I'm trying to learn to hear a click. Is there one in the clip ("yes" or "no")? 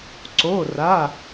yes